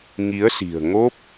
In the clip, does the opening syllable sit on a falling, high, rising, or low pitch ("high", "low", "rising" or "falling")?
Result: rising